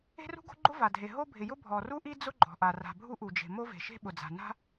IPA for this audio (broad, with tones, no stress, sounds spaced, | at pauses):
e̤˥ r ṳ˥ ɡ o̤˥ ɡ͡ǃ ʊ˥ v a˩ dʱ e˩ ɦ o˥ bʱ ɪ˩ j ʊ˥ bʱ ɔ˩ r u˥ ʔ i˥ d͡z ʊ˥ ɡ͡ǃ ɔ̤˩ ʔ a˩ r a̤˩ bʱ u˥ ʔ u˩ d͡ʒ e̤˩ m o˥ v e̤˩ ʃ e̤˥ ɓ ʊ˩ d͡z a̤˩ n a̤˥